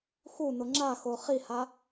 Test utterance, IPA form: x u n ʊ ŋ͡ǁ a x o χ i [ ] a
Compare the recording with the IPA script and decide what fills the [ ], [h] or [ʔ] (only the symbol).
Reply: h